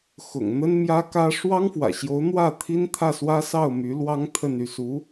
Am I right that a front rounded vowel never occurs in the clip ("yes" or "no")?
no